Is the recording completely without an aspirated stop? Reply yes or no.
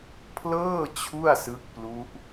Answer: no